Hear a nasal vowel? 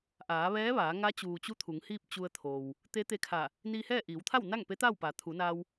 no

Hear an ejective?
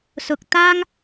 no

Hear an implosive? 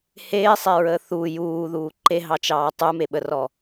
yes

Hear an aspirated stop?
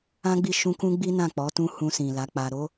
no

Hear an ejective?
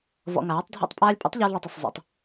yes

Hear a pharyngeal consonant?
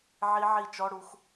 yes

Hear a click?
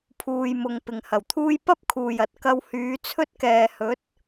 no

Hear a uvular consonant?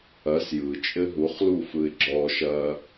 yes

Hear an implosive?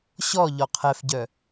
no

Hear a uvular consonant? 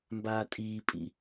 no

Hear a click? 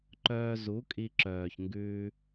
yes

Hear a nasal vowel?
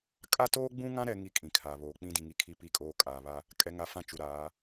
yes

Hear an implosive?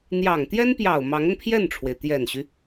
no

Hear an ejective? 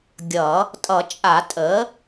yes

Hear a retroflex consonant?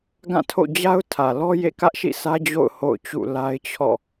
no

